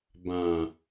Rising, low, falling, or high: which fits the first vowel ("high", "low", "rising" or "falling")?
low